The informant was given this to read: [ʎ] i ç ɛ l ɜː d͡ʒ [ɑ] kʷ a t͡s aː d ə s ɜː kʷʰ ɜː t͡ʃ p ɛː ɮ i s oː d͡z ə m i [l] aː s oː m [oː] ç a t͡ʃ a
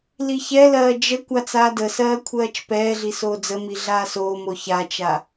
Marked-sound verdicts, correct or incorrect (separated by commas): incorrect, incorrect, incorrect, incorrect